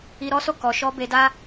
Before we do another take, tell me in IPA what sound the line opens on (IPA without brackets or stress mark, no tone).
i